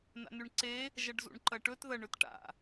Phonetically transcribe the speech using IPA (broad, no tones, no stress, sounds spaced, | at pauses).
n a̰ n ʉ ɳ ǀ e | ʒ ɐ ɖ z ṵ ɳ ǃ ɐ ʈ ɵ t ð ɐ ɳ ɵ t ʈ a̰